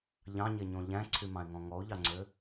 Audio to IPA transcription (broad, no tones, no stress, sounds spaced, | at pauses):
ʎ ɑ̃ ɲ e ɲ õ ʎ æ̃ ǀʰ y m ɑ̃ ɪ̯ ŋ ɔ̃ ŋ ɔ ʊ̯ ʎ ɑ ŋ͡ǀ ø